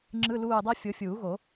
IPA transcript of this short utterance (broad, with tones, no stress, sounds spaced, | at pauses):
ŋ͡ǁ ɯ˧˥˧ l uː˦˨ dˤ ɛ˥ fʲ o˨˦ fʲ uː˨˩˦ ɣ o˨˩˦